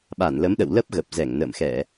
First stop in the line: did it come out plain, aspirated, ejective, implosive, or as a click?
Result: implosive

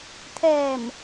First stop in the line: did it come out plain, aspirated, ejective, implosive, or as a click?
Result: aspirated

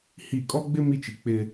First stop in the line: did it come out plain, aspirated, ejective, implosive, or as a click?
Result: ejective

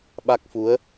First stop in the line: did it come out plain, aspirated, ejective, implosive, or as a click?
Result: implosive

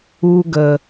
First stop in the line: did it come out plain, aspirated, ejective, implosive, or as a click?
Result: plain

